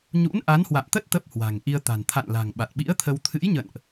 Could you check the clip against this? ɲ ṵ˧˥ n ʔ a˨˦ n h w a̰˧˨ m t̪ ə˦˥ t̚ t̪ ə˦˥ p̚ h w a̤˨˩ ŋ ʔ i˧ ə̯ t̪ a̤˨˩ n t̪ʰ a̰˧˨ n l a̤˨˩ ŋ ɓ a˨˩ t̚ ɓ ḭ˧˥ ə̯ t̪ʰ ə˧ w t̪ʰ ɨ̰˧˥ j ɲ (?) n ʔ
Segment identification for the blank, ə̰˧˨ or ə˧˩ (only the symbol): ə̰˧˨